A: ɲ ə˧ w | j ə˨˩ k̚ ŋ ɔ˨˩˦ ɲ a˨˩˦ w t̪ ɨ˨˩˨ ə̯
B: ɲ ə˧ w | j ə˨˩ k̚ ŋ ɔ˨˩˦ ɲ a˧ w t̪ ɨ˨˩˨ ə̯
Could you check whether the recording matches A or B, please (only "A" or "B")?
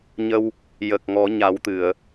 A